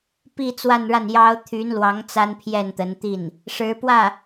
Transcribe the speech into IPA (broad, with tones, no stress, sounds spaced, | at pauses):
p i˥˧ t͡s w a˥˧ n ɻ a˥˩ n j ɑ˥ ʊ̯ t̪ʰ y˧˥ n l w ɑ˧˥ ŋ t͡s a˥ n pʰ j ɛ˥˩ n t̪ ə˧˥ n t̪ i˥˩ n | ʂ ɻ̩˧˥ p w ä˥˩